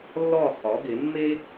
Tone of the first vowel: falling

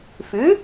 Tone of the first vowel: rising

